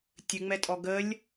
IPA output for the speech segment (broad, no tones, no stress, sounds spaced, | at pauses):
tʲ ɨ ŋ͡m ɛ tʼ ɔ ɡ ə lʲ